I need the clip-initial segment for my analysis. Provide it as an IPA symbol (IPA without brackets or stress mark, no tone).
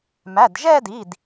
m